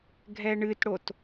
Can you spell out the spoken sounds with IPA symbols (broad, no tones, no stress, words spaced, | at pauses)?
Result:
ɡʱɛɳɨtɽot